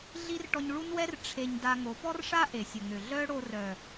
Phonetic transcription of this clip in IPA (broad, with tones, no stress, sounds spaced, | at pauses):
ɮ i˦ r ʈ ɔ˧ ɲ ɭ u˦ n w ɛ˦ r ʈ͡ʂʰ e˧ ɲ d a˧ ŋ o˨˦ p ɔ˦ r ʂ a˦ ʔ e˨ sʲ ə˨ ŋ ø˨ ɮ œ˦ ɽ o˧ r œ˨